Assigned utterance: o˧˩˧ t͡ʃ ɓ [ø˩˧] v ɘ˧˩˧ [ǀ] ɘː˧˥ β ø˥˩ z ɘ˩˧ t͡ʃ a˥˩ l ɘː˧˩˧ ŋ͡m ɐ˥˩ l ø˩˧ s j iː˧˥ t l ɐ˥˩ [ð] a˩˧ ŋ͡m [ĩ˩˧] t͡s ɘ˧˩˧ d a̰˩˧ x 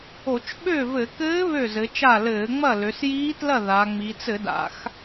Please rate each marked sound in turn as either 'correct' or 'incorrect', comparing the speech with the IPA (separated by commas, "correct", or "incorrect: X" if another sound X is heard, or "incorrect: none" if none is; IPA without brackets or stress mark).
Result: incorrect: ø˥˩, incorrect: k, correct, incorrect: i˩˧